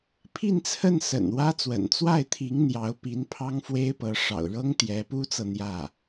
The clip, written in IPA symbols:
pʰ i˥˧ n t͡sʰ ə˥˩ n s ə̰˨˩ n w ä˥ t͡s w ə̰˨˩ n t͡s w a˥˩ ɪ̯ t̪ʰ i˧˥ ŋ n̪ j ɑ˧˥ ʊ̯ p i˧˥ n pʰ ɑ˥ ŋ f w e˥ ɪ̯ p ɤ˧˥ ʂ ɑ̰˨˩ ʊ̯ ɻ ɤ˥ ŋ t̪ j ɛ˧˥ p u˥ t͡s ɤ˨ n̪ j ä˥˩

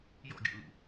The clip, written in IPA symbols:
j ɔ̰ ɡʲ o̰ l ṵ

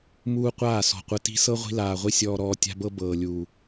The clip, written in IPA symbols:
m uː˦ qʷ aː˦˨ s ɔ̤˨ qʷ ə˧ t i̤˦ s ɤ˦ ʁʷ i̤˧ l aː˨ ʁʷ i˧ sʲ ɔː˧ ɾ ɔː˧ tʲ a̤˦ b ɤ˦ b ɤː˨ lʲ uː˨

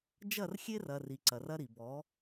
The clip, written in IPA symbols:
d͡ʒ ɐ˦˨ r xʲ e˦ r ɐ˨ r i˨ ǀ ɐ˨ r ɐ˦ ɾ i˨ b ɔ˨˦

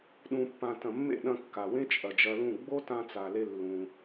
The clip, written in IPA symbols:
ɗ ũ˨ pː ã˨ t ɐ̃˨ mː ḛ˦˨ ɗ ɐ̃˧ kː a˨ w ẽ˦ t͡ʃʼ ɐ˨ d͡ʒ ɐ˧ l ũ˦˨ ɡ͡b o˦ t ã˧ t͡s a˨ l e˧ lː ũ˧

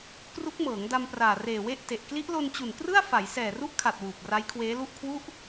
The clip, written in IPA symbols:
k r u˦˥ k̚ m ɤː˩˦ ŋ d a˧ m p r aː˨˩ r eː˨˩ w e˥˩ ʔ t e˨˩ ʔ k l i˦˥ ʔ l o˧ n t͡ɕ u˨˩ n k r ɯ˥˩ a̯ f a˩˦ j s ɛː˨˩ r u˥˩ ʔ kʰ a˨˩ t̚ w uː˨˩ p̚ r a˦˥ j kʰ w eː˦˥ l u˥˩ ʔ kʰ w u˥˩ ʔ

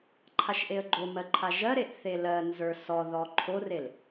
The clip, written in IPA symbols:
ǃʰ a ʃ ʔ e ə̯ ɡ͡ǃ o m ɜ ǃʰ a ʒ ɜ ɾ e ʔ θ e l ɜ n z ə˞ s ɔ ð ɔ ǃʰ o r e l

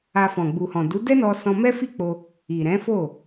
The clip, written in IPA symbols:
a˧ f ɔ̃˨ ɡ͡b u˨ h ɔ̃˨ d u˨˦ d ɛ˦ n ɔ˧ s ɔ̃˧ m ɛ˦ f i˦˨ k͡p o˧ | i˨ ɾ ɛ̃˨˦ f o˦˨

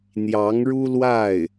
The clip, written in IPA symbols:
n̪ j ɑ˧˥ ŋ ɻ u˥ l w a˥˩ ɪ̯

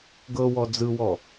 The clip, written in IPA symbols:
ɡ ɤ w ɔ d͡z ɯ w ɔ

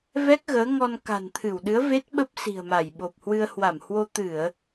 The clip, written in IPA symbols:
v ɛ˦˥ k̚ ɣ əː˨˦ ŋ ɔ˧ n k a̤˨˩ n t̪ʰ ɨ˧˩ w ɗ ɨ˨˦ ə̯ v e˦˥ t̚ ɓ ə˦˥ p̚ s i̤˨˩ ə̯ m a˧˩ j ɓ o˨˩ p̚ h w ɨ˧ ə̯ h w a˧˩ m h w o˧ t̪ ɨ˧˩˨ ə̯

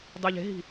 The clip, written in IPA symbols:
dˤ y ʎ e̤ ɦ i̤

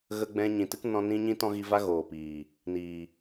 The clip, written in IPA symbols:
ɣ ə˧ ɡ͡b ɛ̃˧ ɲ ĩ˨ t ɨ˦ k n ɔ̃˧ n ĩ˦ ɲ ĩ˦ t ɔ̃˦ ɣ i˧ v a˦ ɣ oː˨ p iː˨ | n iː˨

